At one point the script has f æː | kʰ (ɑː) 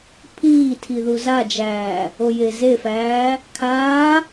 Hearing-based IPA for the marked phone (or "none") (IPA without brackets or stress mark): aː